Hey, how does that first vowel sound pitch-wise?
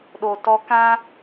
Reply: low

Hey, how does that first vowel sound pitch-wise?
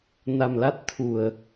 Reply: low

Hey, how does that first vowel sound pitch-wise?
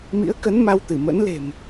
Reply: rising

